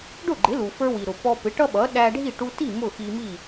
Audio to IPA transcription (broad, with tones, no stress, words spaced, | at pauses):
ɖʊ˥˩ɡ͡ǃɪ˩˥lu˩ fə˞˧wi˩ɾʊ˩ pɔ˧pɪ˩˥ʈʌ˥ɓʌ˩˥ ɗæ˧ɖʱi˥˩ ʈu˧ti˥˩ mʊ˥˩xi˧mi˥˩